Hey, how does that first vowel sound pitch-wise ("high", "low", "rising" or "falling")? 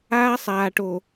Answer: high